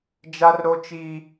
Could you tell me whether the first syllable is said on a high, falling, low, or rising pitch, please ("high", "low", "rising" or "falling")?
high